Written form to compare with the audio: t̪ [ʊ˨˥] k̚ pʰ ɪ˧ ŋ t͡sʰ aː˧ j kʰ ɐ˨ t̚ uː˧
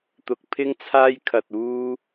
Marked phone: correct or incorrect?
incorrect